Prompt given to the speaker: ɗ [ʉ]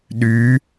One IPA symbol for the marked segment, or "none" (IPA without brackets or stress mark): ʉ